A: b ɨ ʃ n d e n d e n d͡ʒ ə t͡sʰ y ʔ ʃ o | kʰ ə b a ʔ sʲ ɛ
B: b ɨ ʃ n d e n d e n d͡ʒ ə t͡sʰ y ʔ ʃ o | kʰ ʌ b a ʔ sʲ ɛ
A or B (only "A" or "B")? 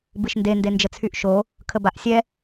A